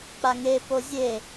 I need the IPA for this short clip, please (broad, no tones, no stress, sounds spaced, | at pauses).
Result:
k͡p a ŋ e p o zʲ e